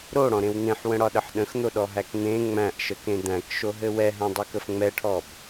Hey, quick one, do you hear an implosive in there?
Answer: yes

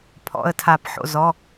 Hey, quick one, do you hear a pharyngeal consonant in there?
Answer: yes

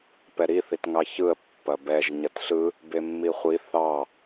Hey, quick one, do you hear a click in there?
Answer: no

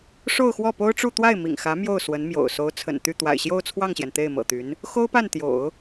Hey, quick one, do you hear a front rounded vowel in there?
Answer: yes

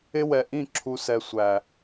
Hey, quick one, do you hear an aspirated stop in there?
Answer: yes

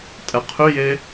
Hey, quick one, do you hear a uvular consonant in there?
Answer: yes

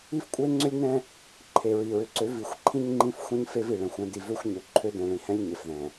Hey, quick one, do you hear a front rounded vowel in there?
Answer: yes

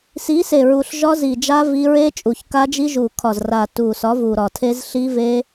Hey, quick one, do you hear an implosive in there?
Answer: no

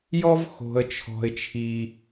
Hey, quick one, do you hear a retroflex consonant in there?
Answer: no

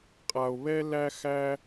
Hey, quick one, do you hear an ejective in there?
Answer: yes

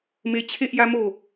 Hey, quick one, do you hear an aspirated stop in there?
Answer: yes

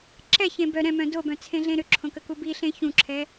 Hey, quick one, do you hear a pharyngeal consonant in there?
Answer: no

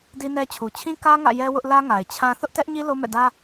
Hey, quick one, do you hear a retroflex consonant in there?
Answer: no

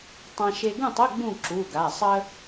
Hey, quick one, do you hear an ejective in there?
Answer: no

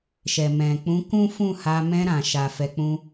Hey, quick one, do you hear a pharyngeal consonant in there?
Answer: no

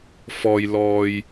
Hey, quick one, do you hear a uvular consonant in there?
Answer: no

